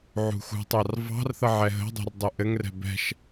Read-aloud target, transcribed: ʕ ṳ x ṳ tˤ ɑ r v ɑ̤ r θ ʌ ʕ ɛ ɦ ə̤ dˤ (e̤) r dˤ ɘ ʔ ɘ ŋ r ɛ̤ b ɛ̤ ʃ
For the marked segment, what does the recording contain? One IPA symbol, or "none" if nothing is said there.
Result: e̤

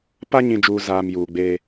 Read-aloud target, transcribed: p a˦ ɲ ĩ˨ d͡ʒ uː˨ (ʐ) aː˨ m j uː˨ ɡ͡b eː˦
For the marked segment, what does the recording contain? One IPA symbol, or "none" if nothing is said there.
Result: z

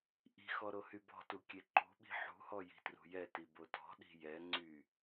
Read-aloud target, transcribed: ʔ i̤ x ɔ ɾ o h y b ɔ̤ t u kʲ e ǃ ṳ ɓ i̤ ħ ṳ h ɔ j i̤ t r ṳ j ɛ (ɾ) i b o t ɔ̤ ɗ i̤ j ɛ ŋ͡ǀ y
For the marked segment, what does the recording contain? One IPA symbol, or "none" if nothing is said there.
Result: t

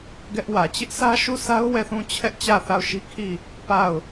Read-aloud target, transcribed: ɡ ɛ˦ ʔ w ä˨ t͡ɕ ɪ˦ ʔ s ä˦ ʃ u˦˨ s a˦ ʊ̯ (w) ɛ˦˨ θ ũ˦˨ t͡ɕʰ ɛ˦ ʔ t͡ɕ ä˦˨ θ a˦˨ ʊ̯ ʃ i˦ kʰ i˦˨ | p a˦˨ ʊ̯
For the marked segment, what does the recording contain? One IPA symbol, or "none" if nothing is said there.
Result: w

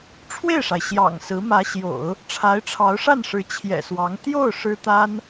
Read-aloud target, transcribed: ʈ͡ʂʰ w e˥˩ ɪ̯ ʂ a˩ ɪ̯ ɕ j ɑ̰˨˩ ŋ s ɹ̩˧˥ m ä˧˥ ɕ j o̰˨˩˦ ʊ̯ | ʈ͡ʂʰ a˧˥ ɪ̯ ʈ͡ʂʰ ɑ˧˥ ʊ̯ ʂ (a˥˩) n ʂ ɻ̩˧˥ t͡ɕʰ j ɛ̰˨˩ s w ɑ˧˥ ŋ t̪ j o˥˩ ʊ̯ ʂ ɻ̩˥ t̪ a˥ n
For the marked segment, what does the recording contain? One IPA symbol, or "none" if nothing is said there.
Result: a˥˩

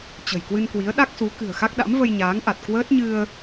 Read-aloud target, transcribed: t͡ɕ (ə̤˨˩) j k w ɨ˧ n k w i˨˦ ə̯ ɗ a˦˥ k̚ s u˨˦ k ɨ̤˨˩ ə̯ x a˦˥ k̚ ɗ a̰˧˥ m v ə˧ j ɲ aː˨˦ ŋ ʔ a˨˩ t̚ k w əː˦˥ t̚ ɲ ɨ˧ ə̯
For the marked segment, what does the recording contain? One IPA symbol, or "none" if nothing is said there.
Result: ə̤˨˩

